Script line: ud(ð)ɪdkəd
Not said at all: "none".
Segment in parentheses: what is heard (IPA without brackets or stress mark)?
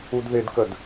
ð